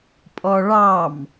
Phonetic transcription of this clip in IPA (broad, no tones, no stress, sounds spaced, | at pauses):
pʼ ɔ ɭ ɑ m